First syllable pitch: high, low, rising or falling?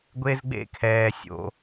high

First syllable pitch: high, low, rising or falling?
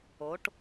rising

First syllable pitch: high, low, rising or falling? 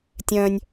high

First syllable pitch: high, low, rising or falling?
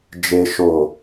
low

